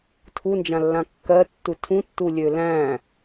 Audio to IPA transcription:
tʰund͡ʒãlːã kːɜtːu tʰũtːulʲø læ̃

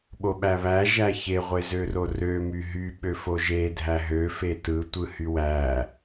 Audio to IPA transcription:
ɓoɓæβæ ʒæçe ʁʷezørorø myɦy ɓøfoʒe dʱæɦø fetɯ tʷɯhywæ

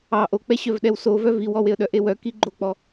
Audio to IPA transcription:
ɑ ʔok͡pɛɕœvɗɛw sovœ viwɔweə̯ ɗœʔewœ kiɡ͡ǃok͡pɔ

